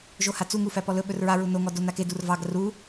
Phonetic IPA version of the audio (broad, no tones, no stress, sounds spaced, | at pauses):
ʒ o h a t͡s u ŋ u f æ p ɔ l ɵ ɓ ɵ r ɹ a ɹ u n o ŋ ɔ d o n a k e d u r v ɑ ɡ r u